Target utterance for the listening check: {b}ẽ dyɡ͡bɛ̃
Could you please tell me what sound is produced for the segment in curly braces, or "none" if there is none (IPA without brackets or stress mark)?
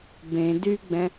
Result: b